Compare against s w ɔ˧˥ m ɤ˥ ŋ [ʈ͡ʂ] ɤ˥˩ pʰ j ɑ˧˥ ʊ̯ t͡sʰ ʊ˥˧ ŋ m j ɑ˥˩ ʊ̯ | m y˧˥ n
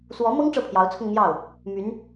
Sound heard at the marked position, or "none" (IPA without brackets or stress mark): ʈ͡ʂ